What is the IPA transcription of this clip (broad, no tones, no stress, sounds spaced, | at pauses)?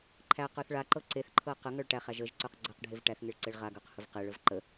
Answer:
ǃʰ æ q ə˞ θ ɭ a ǃ ɤ ǀ e θ ǃʰ ɤ q ə ŋ ɤ ɭ ʈ æ χ æ ʒ ə ʒ ǀ ə˞ q ɡ͡ǀ ɤ q ɖʱ e v ʈ æ θ ŋ e ɭ ǀ e ɭ ʁ a ɡ ə˞ q h ə v q e ɭ ə v ǃ ə